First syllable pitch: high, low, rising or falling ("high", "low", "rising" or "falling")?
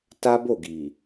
high